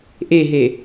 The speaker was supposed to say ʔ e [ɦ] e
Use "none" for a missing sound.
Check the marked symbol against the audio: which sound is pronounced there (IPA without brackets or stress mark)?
ɦ